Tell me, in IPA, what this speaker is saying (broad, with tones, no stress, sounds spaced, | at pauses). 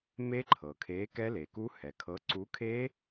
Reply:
m e˦˥ ǃʰ ɤ˩ kʰ e˨˥ k ɛ˦˥ l e˩ k u˦˥ h ɛ˩ kʰ ɤ˨˥ ǀ u˨˥ kʰ e˦˥